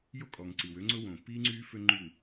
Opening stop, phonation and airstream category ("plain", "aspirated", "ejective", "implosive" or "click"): ejective